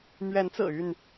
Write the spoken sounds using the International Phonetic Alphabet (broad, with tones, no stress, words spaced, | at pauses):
mɥɛ˨˦nt͡sɹ̩˨˩y˥˨n